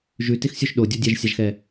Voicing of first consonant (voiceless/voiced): voiced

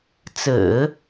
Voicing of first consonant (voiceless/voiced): voiceless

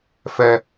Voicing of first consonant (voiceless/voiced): voiceless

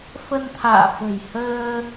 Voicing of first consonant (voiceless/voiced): voiceless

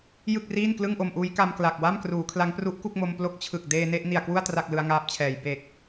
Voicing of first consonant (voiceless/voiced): voiced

